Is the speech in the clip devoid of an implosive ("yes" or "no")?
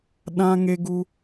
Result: no